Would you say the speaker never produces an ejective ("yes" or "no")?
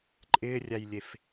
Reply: no